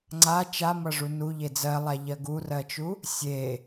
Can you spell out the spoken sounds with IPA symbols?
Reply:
ŋ͡ǀ a t͡ʃ a m ʌ ʐ u n u ʎ e d͡z ɜ lˠ a ʎ ɜ ɡ u r ɜ t͡ʃ u | sʲ e

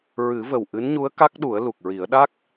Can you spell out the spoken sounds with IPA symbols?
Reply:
ɹ ɨ˨˩˦ v ə˨˩ w ʔ ɨ˧˥ n ɲ u˧˥ ə̯ k a˦˥ k̚ ɗ u˨˩˦ ə̯ l u˨˩ k̚ ɹ i˨˩˦ ə̯ ɗ a˦˥ k̚

